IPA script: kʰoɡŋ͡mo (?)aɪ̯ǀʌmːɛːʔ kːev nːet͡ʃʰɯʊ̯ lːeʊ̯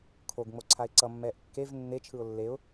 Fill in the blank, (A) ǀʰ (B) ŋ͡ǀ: A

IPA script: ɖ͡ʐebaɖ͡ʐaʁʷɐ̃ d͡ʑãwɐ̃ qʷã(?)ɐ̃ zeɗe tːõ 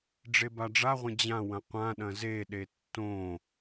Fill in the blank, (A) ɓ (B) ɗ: B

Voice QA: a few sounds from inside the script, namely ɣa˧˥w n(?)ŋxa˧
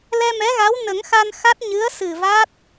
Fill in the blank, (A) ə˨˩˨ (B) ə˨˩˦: B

